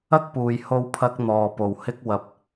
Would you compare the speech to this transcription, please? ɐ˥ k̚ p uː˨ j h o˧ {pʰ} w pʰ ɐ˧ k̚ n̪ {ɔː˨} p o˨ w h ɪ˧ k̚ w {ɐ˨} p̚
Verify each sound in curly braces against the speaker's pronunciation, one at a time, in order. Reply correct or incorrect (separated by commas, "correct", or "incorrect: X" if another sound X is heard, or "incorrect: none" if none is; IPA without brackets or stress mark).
incorrect: none, correct, correct